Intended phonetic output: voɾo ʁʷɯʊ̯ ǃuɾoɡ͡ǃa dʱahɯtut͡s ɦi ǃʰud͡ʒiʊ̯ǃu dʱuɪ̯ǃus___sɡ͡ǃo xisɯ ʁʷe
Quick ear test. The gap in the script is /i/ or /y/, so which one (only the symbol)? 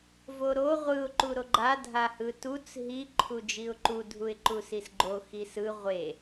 i